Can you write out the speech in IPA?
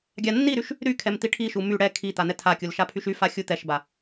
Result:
ɡʲ a nː i ɾ y ʃ | ɾ y kʰ ɛ m t̪ i ʈʰ i ʃ u m y ɽ ɛ kʰ i t̪ a n̪ ɛ tʰ a kʲ u l ʃ a pʰ y ʃ y f a xʲ u t̪ ɛ ʃ b a

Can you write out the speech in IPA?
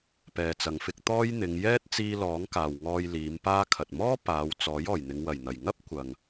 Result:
p ɛː˨ t͡s ɐ˨ ŋ f ɪ˧ k̚ t̪ ɔː˥ j n̪ ɪ˨˧ ŋ j ɛː˥ t̚ t͡s iː˧ l ɔː˨˥ ŋ k aː˨ w ŋ ɔː˧ j l iː˨˧ m p aː˧ kʰ ɐ˨ t̚ m ɔː˥ p aː˨˧ w t͡s ɔː˨˥ j ɔː˨˩ j n̪ ɪ˨˧ ŋ w ɐ˨˩ j n̪ ɐ˨˩ j ŋ ɐ˥ p̚ kʷ ɐ˨ ŋ

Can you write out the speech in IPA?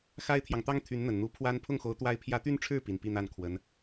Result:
x a˥ ɪ̯ t̪ʰ j ɑ˨ ŋ t̪ ɑ˥ ŋ t̪ʰ y˧˥ n n̪ ə˨˩ n n̪ u˧˥ pʰ w a˥ n pʰ ʊ˥˩ ŋ x o˧˥ ʊ̯ t̪ w a˥ ɪ̯ pʰ j ä˥ t̪ y˥˧ n ʈ͡ʂʰ ɻ̩˥˩ p i˨˩ n p i˥˧ n̪ a˥˩ n kʰ w ə˧˥ n

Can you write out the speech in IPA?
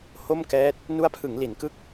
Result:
h o˥˩ m k ɛː˦˥ t̚ | n u˦˥ a̯ pʰ ɯ˩˦ ŋ l i˩˦ n k ɯ˦˥ k̚

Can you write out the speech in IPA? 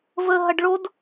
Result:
v ə ɦ ɐ ɖ ɭ o d

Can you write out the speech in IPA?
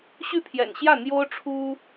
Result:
ɕ y˥˩ pʰ j ɛ̰˨˩ n ɕ j ä˥˩ n̪ j o˥ ʊ̯ ʈ͡ʂʰ u˥

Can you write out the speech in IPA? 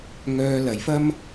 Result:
ŋ œː˧ l ɐ˨ j f ɐ˥ m

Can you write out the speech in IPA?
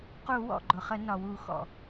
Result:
q u˧˩˧ w ɔ̰˩ ɡ͡ǃ ʊ˩ χ ə˧˩˧ n ɒ˩ w u˧˩˧ x ɔ̰˩

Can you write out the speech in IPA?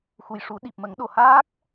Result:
x u˨˩ j ʂ u˨˩˦ ɗ i˨˩ p̚ m ə˨˩˦ ŋ ɗ o˨˩ h aː˦˥ k̚

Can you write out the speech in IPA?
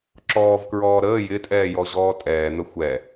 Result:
ǁ ɔː v k ɹ ɔː ɾ əː j ɪ tʼ ɛː j ɔ ʑ ɔː tʼ ɛː n̪ ə xʷ ɛ

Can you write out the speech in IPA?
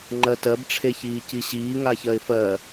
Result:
ŋ͡ǃ ɜ t ɜ b ʈ͡ʂʰ e ç iː c i ɕ iː ŋ aː ç ɜ ɪ̯ f ɜ

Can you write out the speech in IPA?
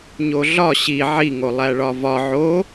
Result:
ɲ o ɮ ɒ ɕ i ʕ i ŋ o lˠ æ ɭ ɒ v ɒ ʕ o

